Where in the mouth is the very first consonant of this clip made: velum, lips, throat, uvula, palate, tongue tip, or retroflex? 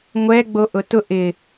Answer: velum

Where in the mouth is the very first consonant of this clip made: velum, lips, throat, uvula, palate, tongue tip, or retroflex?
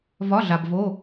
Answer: lips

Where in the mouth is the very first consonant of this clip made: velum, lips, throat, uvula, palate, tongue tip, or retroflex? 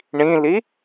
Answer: retroflex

